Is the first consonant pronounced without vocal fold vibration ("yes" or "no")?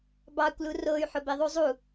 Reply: no